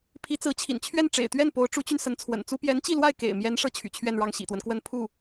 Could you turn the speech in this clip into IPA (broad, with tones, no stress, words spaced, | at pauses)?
pʰi˧˥t͡sɹ̩˧˥t͡ɕʰḭ˨˩n t͡ɕʰɥɛ˥˩nʈ͡ʂḛ˨˩ɪ̯t̪ɥɛ˥˩n po˧˥ʊ̯ʈ͡ʂu˧˥t͡ɕy˧n sə˧˥nt͡sʰwə̰˨˩nt͡su˥ pjɛ˧˥nt͡ɕi˥˧lwa˥˩ɪ̯ kḛ˨˩ɪ̯mjɛ˧˥n ʂɤ˥t͡ɕʰy̰˨˩t͡ɕʰɥɛ˥˧nɻɑ˥˩ŋ ɕḭ˨˩t̪wə˦nkwə˥˧n pʰu˥˩